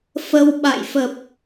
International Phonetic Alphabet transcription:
fə˧wɓa̰˧˨j fə˨˩p̚

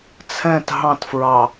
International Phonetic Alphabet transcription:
t͡sʰɛ̃t ɦɑ̃tfɹɑ

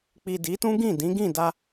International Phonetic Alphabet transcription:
k͡pi˨ di˨˦tũ˦ɡĩ˦˨ dĩ˨˦ɡĩ˦˨da˧

